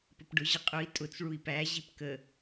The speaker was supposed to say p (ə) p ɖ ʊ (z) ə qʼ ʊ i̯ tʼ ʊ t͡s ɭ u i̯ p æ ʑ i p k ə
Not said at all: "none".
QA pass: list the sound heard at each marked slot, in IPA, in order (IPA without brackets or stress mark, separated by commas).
ə, ʑ